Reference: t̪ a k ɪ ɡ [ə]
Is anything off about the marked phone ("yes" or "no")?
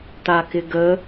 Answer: no